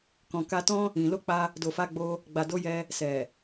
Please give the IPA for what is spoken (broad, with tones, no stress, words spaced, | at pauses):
kɔ̃˨ka˧tɔ̃˦ | ĩ˨ lo˧k͡pa˧ | do˨fa˧ɡ͡bo˧ | ɡ͡ba˨do˨˦jɛ˧ | sɛ˨